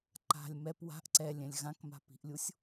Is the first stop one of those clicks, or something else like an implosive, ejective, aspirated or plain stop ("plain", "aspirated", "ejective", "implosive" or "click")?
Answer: click